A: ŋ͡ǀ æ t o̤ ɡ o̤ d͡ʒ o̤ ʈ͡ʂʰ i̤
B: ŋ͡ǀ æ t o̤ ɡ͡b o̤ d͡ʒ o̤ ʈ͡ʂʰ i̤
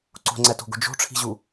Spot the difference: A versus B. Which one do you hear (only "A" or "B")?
A